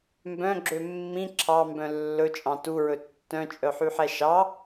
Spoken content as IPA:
m b œ̃ ɡ͡ǁ ø mː ĩ ǁʰ ɑ m b œ̃ lː ɵ t͡ʃʼ ɑ̃ t u ɹ ɵ tː œ̃ t͡ʃʼ œ ħ y ħ ɛ ʃ ɑ

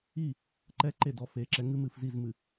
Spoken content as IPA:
i˦˨ | ǃ ɛ˦ ǃ e˦˨ d ɔ˨ f e˨ ǁ ɛ˨˦ ŋ ɨ˦ m ɨ˨ f z i˦˨ z m ɨ˨

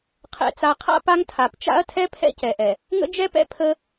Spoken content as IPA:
qʰ ɛ̰˨ t͡s a˨ qʰ a̰˦ p a˦ ŋ tʰ a˨ p t͡ʃ a̰˦ ɐ̯ tʰ ɛ˦ pʰ ɛ̰˦ c ɛ˨ ʔ ɛ˨ | ŋ ə̰˦ d͡ʒ ɛ˦ p ɛ̰˦ pʰ ə˦

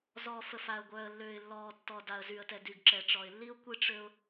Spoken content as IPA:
z ɔː˨ f ə˨ f a˨ ə̯ ɡʷ œː˨ ə̯ lː øː˨ ɪ̯ lː ɔː˨ tː ɔ˨ d a˨ ə̯ z y˨ ə̯ t ɛ˨ d y˨ ɡ ǁ ɛ˨ ʈ͡ʂ ɔ˨ ɪ̯ lː i˦ ʊ̯ kʷ i˦ ʈ͡ʂ ø˦ ʊ̯

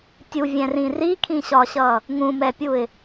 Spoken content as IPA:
tʲ u vʲ ɛ̃ r ĩ r i kʰ ĩ ɕ ɒ ɕ ʌ | ŋ ũ m ɛ pʲ u ɪ̯

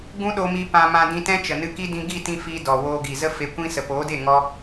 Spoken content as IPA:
ɡ ũ˦ ɗ o˧ m i˧ p ã˧ m ã˧ d ĩ˧ t ɛ̃˦ t͡ʃ ə˨ n ɨ˧ k i˦ d ĩ˧ ɡ i˦˨ t ĩ˧ f i˧ d ɔ˨ w oː˧ ɡ i˨ z ə˦ f e˧ kʷ ĩ˦ s ə˨ p oː˨˦ d e˦˨ ŋ ɔ˦

